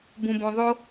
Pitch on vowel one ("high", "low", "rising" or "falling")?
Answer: low